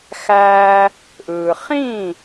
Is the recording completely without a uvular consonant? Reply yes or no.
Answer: no